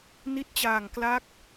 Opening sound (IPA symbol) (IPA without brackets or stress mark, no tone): n